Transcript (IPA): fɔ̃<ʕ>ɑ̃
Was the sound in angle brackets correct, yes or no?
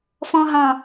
no